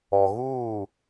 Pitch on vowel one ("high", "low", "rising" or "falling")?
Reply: low